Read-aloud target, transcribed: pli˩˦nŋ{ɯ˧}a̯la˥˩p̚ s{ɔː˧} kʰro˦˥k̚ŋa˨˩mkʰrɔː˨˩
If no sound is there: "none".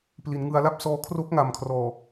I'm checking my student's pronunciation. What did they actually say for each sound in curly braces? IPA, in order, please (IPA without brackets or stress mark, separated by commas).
ɯ˧, ɔː˧